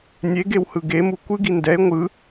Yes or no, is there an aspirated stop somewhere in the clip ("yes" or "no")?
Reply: no